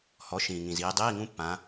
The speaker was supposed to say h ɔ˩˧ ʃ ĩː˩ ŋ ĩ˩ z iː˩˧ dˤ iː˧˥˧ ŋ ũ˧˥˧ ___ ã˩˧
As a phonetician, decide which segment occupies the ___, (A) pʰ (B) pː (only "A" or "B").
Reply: B